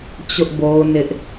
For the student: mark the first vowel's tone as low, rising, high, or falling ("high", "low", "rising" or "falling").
high